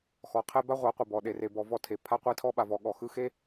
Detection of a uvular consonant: present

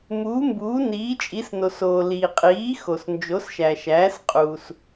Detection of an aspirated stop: absent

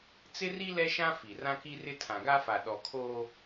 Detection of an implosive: present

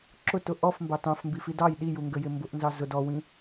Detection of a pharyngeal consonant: absent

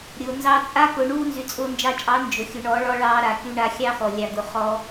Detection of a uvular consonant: present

